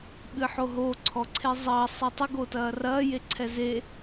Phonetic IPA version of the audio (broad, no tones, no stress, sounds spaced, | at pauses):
ɓ ɨ ħ o ɦ o ǀʰ ɔ ǀʰ e zˤ ɐː sˤ ɨ tˤ ɘ ɡ o t ɐː r ɐː j e ǀʰ ɛ z e